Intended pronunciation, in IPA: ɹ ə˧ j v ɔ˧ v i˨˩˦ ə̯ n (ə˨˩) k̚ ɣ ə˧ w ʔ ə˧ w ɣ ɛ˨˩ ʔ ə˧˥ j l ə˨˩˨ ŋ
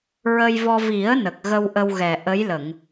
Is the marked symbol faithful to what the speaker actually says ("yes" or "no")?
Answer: yes